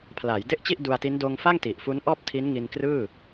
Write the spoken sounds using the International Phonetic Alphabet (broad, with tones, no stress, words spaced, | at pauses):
pʰlaː˩˦jde˥˩ʔt͡ɕi˥˩ʔ du˧a̯ti˦˥n doː˧ŋfa˥˩ŋti˨˩ʔ fu˦˥nʔɔː˥˩p̚tʰi˦˥n ŋi˧nkrɯː˥˩